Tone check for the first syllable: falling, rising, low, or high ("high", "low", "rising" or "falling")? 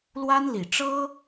high